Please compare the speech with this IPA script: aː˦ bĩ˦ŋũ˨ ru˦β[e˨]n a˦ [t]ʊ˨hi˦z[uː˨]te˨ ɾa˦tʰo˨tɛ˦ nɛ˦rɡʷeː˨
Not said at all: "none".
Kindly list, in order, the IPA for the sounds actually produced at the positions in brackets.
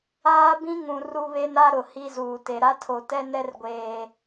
e˦, ɾ, uː˨

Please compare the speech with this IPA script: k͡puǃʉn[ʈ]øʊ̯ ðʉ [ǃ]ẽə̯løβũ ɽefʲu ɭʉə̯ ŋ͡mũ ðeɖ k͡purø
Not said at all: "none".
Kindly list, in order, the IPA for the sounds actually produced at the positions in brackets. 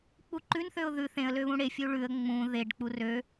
θ, θ

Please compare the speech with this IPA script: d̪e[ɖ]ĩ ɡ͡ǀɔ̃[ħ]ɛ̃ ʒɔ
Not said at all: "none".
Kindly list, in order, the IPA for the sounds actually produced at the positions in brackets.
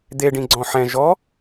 ɖ, ħ

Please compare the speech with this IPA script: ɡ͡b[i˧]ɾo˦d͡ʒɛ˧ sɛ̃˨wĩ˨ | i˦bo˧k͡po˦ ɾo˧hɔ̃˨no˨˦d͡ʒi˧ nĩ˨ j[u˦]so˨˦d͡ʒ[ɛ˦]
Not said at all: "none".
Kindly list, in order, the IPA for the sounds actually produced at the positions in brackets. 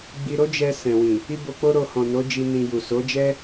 i˧, u˨, ɛ˦

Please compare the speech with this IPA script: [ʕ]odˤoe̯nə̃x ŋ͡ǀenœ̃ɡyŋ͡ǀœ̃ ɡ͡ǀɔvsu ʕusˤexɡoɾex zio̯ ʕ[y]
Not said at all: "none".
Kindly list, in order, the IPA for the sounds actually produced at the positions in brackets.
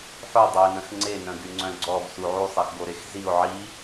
ħ, i

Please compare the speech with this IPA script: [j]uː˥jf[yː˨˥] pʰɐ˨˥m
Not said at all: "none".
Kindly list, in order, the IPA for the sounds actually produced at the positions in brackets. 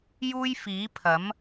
j, iː˨˥

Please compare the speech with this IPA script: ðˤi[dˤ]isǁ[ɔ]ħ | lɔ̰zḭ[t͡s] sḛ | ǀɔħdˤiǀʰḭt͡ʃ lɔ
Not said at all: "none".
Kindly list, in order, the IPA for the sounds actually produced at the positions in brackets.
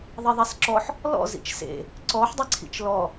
ðˤ, ɔ, t͡ʃ

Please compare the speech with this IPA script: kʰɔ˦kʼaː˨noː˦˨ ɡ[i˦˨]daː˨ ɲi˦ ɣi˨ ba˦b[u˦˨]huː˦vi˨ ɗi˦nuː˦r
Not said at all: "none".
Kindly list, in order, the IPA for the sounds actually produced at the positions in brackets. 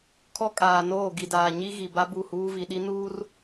i˨, u˦˨

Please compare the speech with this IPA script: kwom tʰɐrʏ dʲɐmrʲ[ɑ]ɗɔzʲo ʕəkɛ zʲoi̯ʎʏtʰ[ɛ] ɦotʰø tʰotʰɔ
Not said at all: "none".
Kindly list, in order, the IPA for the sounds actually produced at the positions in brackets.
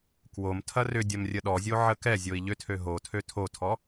ə, ø

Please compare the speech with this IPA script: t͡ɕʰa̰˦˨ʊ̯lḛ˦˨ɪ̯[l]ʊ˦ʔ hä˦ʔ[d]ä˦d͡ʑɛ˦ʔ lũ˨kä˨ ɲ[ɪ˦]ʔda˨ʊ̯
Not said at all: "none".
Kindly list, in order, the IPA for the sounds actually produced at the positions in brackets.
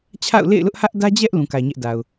l, d, ɛ˦

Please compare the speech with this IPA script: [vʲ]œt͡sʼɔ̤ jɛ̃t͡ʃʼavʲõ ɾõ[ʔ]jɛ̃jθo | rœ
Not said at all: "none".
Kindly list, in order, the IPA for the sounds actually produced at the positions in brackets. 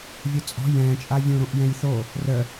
vʲ, ʔ

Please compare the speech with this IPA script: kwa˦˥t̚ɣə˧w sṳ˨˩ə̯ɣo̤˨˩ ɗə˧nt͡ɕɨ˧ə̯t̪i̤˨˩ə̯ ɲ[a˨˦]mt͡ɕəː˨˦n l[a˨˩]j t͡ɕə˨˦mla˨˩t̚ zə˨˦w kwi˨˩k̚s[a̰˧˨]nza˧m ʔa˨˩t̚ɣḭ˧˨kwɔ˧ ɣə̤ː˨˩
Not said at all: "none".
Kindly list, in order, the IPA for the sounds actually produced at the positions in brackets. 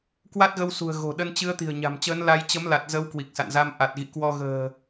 a̤˨˩, a˧, a̰˧˨

